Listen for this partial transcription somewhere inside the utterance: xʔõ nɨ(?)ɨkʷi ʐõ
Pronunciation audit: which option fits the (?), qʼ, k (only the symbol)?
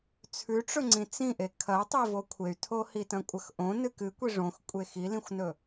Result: k